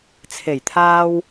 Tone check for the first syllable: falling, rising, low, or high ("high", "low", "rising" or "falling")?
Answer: low